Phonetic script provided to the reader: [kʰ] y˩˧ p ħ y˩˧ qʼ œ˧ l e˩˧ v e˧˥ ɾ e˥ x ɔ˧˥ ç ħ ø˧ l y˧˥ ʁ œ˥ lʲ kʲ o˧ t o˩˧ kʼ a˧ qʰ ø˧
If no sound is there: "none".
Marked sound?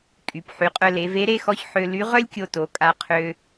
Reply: kʼ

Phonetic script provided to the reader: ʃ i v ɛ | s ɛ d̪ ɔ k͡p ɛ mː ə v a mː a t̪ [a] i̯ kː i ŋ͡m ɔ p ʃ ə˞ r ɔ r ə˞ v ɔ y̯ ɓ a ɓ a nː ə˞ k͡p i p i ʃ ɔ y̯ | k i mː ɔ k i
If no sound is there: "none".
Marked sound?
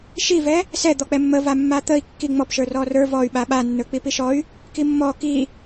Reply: ə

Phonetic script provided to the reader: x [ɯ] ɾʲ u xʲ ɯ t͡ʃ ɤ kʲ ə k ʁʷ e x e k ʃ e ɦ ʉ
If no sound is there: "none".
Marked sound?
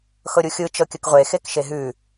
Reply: ɤ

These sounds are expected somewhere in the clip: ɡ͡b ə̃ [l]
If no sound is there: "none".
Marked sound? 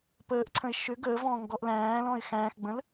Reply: l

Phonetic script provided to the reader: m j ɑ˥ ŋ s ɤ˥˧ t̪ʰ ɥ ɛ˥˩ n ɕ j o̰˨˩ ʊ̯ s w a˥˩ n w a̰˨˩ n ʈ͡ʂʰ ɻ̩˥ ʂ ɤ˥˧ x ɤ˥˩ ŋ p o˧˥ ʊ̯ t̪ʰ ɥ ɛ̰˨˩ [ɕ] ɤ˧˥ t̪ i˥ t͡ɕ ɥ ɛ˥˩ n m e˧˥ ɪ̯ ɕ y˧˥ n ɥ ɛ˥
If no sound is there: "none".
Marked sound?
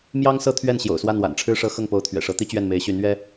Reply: ʂ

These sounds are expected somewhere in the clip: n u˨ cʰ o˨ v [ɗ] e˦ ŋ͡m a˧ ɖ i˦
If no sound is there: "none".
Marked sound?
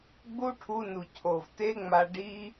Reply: t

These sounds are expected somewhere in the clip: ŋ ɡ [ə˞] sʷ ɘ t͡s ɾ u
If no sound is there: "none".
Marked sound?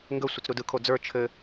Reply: ə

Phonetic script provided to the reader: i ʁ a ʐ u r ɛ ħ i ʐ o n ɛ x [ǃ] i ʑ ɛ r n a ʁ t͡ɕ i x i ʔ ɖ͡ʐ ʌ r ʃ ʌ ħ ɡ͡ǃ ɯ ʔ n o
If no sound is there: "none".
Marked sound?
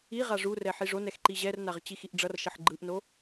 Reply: ǃ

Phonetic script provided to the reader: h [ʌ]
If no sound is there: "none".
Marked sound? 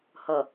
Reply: ʌ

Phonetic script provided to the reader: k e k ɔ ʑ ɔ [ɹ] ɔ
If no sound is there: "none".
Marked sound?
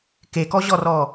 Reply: r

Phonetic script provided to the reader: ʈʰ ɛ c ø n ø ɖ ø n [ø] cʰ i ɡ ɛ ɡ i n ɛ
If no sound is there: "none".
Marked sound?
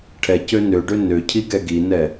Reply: ø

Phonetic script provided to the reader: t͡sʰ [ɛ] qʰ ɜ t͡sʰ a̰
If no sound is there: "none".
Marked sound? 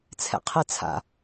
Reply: ɛ̰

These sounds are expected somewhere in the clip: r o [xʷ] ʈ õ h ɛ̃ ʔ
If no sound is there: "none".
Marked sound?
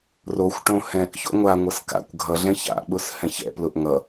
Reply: xʷ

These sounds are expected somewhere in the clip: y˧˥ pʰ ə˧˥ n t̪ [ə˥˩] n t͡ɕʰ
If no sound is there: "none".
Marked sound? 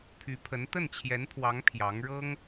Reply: ə˥˩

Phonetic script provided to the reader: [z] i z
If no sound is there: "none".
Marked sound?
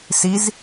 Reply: s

